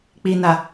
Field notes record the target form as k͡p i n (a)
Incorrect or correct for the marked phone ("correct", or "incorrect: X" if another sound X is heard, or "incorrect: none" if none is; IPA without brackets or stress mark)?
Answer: correct